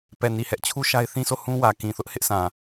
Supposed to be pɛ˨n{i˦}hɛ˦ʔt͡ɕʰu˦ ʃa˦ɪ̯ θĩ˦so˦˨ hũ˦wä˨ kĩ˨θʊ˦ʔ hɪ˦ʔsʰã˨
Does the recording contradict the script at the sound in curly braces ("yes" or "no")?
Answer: yes